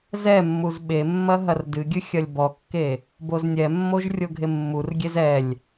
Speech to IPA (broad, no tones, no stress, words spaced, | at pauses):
zɛmːuz ɓemːɐ ɦɐrdɨɡʲɨ xʲɐlʲbɔkːe | boznʲɛmːoʒ rʲoɡʱemːurɡʲez ɛlʲ